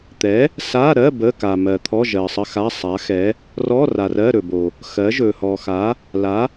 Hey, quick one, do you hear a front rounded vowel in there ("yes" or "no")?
no